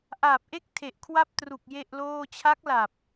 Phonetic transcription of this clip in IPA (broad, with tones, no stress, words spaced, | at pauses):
ʔaː˨˩p̚ʔe˥˩k̚ tʰe˨˩ʔkʰwa˥˩p̚tru˨˩k̚ je˥˩ʔloː˥˩ t͡ɕʰa˦˥k̚la˨˩p̚